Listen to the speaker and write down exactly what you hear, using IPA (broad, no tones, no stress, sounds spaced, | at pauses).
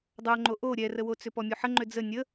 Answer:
dˤ o ŋ͡ǃ o ʔ o ɾʲ ɛ r ə w o t͡s ʏ p ɔ mʲ u ħ ə ŋ͡ǃ ʏ d͡z ə nʲ ə